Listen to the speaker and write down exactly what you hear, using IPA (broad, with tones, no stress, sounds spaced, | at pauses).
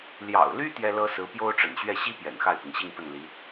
l j ɑ̰˨˩ ʊ̯ l y˥ t̪ j ɛ˥ l ɤ˥ s ɹ̩˧˥ p j o˥ ʊ̯ ʈ͡ʂ ə̰˨˩ n ɕ ɥ ɛ˥˩ ɕ i˥ p j ɛ̰˨˩ n x a˥˩ ɪ̯ p i˩ ŋ ɕ i˥˧ ŋ p ə˥˩ n l i˧˥